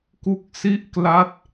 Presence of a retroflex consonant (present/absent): absent